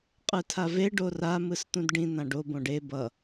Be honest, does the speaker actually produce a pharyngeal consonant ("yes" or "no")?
no